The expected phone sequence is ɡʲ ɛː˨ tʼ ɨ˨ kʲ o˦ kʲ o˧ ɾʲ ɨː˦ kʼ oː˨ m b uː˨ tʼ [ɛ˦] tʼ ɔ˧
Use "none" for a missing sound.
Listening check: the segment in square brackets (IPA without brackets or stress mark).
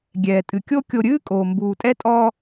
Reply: ɛ˦